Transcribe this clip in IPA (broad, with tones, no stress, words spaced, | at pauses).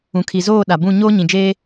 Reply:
ũ˨kʰi˨zoː˦˨ ɗa˨ bũ˦˨ ɲoː˦ɲĩ˨d͡ʒeː˦